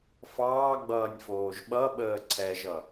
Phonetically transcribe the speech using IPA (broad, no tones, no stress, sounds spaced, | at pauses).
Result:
f ɑː ɡ͡b ʌː nʲ f oː ʒ ɓ ʌ ɓ əː ǀʰ ɛ ʒ ʌ